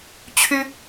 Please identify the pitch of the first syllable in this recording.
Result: high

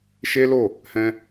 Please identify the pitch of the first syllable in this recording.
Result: high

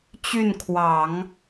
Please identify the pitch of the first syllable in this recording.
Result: falling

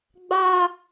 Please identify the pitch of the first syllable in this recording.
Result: high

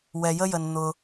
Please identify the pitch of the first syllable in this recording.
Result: low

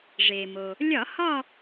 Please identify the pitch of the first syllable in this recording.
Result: low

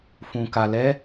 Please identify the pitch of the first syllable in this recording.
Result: low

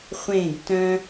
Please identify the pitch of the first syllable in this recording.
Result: falling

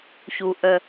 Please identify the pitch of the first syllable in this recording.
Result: low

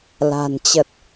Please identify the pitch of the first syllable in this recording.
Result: low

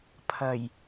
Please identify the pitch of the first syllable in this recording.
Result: low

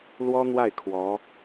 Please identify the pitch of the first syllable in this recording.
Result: high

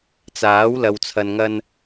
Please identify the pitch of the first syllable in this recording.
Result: rising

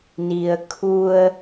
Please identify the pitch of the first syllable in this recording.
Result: low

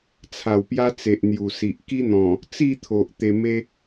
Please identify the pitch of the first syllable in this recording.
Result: low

